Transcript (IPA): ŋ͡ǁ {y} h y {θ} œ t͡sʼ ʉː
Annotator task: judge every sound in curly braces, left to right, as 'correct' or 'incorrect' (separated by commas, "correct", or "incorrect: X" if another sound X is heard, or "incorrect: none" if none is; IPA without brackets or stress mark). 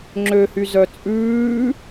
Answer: incorrect: ø, incorrect: z